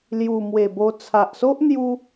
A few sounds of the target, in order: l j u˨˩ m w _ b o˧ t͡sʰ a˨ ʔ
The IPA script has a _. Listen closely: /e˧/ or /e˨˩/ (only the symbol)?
e˨˩